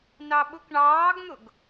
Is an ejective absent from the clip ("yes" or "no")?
yes